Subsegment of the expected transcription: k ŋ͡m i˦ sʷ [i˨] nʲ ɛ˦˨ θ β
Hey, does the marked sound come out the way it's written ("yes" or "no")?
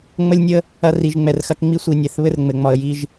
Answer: yes